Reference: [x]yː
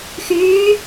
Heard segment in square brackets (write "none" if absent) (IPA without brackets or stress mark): x